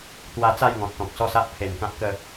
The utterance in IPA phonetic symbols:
t̪ w a˧ t͡s a˥˧ j ŋ ɔ̃˨ t̚ t̪ ɔ̃˨ k̚ s ɔ˥˧ s a˦ ʔ pʰ e˨˩ n k ã˦ p̚ k ə˥˧

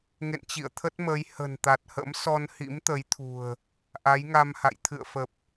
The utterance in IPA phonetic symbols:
ŋ ḛ˧˨ n t͡ɕ ḭ˧˨ ə̯ t̪ʰ ə˦˥ t̚ m əː˨˦ j h ə̤˨˩ n t̪ a˨˩ t̚ h ə̰˧˥ m s ɔ˧ n h ḭ˧˥ m t̪ ə˨˦ j t̪ʰ ṳ˨˩ ə̯ | ʔ a˨˦ j ŋ a˧ m h a̰˧˨ j t̪ʰ ɨ̰˧˨ ə̯ f ə˨˩ p̚

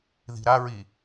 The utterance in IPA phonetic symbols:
ð i̤ ɾ a ɹ i

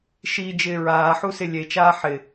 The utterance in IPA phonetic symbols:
ʃ i d͡ʒ ɪː ɹ aː ħ u s ɪ lʲ e t͡ʃ aː ħ ɪ

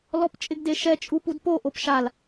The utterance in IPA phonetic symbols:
l ɔ p t͡ʃʼ ɪ ɡ d e ʃ ɛ t͡ʃʼ u p u d p o ʔ o p ʃ a l

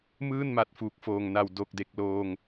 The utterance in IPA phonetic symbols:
m ɯː˥˩ n m a˨˩ t̚ f uː˨˩ k̚ f oː˨˩ ŋ n a˨˩ w d o˨˩ k̚ d e˨˩ k̚ l oː˧ ŋ

